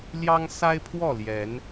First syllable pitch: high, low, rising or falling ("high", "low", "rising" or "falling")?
high